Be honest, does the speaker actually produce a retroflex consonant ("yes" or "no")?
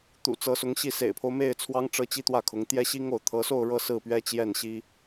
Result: yes